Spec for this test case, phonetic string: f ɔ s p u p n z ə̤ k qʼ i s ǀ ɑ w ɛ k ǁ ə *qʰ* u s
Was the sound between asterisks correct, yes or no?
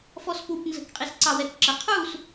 yes